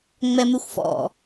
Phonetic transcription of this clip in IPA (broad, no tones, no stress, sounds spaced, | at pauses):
ŋ͡m ɛ m ʉ xʷ f ɔ̰